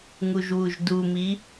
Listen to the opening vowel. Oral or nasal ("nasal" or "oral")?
oral